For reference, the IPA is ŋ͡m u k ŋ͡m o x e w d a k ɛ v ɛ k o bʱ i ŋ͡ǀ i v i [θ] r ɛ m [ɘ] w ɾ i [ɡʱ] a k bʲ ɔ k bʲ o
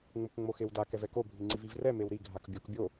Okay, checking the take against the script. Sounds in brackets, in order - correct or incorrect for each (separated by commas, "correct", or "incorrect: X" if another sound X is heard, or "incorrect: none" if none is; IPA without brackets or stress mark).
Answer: incorrect: v, incorrect: e, correct